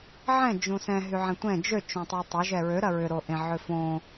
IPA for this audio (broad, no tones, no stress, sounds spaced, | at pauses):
ʕ ɛ̃ d͡ʒ ũ s ɛ̃ ɦ y ʕ ɛ̃ tʷ ɛ̃ d͡ʒ ø t͡ʃ õ tˤ u tˤ ø ʒ ɛ ɹ ø ɾ ɐ ɹ ʏ ɾ o ʔ ẽ ʕ ø f õ